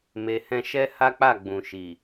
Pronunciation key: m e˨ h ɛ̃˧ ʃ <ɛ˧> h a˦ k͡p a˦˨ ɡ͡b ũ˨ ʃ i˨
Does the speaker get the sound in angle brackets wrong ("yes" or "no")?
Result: yes